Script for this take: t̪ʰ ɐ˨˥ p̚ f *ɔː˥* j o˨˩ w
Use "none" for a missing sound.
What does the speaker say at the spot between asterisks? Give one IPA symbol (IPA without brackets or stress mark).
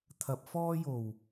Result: ɔː˥